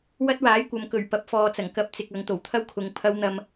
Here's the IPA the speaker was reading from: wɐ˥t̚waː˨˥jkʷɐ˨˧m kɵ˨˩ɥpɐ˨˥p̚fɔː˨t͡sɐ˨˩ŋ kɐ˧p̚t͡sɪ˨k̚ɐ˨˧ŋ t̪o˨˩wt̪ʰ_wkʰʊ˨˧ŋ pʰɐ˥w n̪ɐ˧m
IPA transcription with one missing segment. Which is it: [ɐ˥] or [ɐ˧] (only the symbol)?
ɐ˥